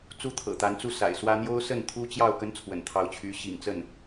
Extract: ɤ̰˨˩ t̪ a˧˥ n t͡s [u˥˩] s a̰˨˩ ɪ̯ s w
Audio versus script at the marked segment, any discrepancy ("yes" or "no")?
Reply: no